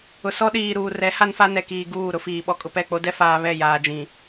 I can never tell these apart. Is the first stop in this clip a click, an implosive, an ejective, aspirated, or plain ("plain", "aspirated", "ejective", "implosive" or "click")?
implosive